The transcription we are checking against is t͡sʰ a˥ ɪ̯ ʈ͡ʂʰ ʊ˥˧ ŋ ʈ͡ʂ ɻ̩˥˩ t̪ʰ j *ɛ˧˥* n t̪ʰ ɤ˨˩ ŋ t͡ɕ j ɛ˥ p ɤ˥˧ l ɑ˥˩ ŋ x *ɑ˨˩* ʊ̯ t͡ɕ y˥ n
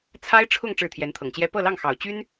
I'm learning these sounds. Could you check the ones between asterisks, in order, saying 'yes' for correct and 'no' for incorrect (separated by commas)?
yes, yes